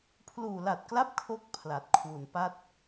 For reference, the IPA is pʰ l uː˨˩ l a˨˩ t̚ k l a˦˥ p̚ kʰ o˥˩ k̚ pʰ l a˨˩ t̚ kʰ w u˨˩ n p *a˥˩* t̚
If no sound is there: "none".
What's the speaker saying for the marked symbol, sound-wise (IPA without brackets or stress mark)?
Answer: a˥˩